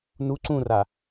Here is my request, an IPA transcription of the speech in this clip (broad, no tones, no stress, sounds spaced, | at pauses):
n u ǀ ũ r a